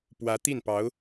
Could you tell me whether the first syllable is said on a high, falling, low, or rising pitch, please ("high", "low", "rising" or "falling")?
rising